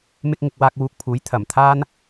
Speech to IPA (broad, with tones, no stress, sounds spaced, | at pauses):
m ɪ˧ k̚ ŋ ɪ˧ k̚ w aː˧ k̚ w uː˧ k̚ pʰ uː˨˥ j t̪ʰ ɐ˨˩ m t̪ʰ aː˥ n